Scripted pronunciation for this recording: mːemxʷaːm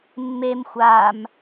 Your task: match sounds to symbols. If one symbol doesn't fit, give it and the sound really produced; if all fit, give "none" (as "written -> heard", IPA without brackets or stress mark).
none